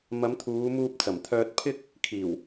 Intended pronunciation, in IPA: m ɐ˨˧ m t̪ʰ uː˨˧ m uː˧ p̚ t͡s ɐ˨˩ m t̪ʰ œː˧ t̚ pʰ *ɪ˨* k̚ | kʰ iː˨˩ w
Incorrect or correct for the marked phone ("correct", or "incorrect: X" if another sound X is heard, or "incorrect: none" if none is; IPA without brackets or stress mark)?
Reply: incorrect: ɪ˥